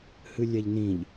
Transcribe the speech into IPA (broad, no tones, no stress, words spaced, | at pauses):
hɨlʲɛʎnĩʎ